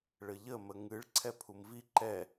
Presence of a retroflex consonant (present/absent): present